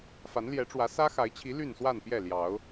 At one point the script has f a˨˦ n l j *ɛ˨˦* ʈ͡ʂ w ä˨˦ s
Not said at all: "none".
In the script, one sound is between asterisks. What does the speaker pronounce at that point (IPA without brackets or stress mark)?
ɛ˨˦